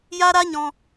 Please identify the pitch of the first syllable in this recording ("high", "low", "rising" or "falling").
high